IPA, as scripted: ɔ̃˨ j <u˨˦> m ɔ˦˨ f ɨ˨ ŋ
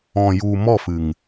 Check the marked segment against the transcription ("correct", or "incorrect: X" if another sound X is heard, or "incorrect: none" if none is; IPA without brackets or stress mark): incorrect: u˨